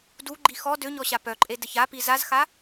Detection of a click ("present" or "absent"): present